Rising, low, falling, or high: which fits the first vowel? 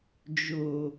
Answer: low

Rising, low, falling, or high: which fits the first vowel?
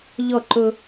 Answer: falling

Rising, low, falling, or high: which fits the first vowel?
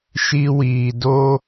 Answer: high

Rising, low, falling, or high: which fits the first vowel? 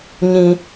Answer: low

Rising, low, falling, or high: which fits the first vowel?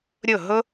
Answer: falling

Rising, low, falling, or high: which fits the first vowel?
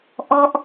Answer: falling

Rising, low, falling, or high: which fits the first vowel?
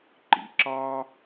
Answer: low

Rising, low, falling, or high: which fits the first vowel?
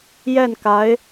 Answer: falling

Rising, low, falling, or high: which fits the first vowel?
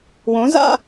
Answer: rising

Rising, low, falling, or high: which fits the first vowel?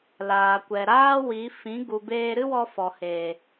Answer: low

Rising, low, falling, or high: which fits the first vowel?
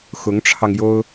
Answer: rising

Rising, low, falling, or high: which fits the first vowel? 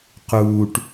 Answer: low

